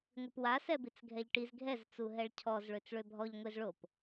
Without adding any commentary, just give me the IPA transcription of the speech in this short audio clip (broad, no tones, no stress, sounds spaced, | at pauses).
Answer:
ŋʷ i p w a s ɛ b i t͡s ɡʱ ɛ ʎ ʈ i z ɡʱ ɛ z t͡s u ɦ ɛ ɭ cʰ ɔ z ɭ ø t͡s ɭ ø bʱ ɔ ʎ ŋʷ e z ɭ o p